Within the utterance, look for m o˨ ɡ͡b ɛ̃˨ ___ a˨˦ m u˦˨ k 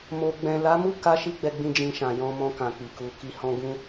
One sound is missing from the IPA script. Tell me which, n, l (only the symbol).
l